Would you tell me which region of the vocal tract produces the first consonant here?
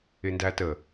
tongue tip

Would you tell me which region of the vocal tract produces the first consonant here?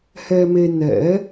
throat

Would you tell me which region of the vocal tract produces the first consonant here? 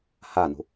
throat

